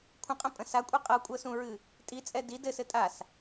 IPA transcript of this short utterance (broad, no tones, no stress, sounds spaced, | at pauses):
kʷʰ ə̃ qʼ ə̃ pʼ ə̃ s a kʷʼ ɛ qʼ ɤ kʷʼ ɤ s ũ ɹ ɨ | tʼ i t͡sʼ ɛ d i d ɘ s ɘ tʼ a s